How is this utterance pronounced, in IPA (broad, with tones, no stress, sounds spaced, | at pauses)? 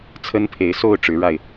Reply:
t͡sʰ ə˦ n pʰ e˨˦ ɪ̯ s o˥˨ ʊ̯ ʈ͡ʂ ɻ̩˨˦ ɻ a˧ ɪ̯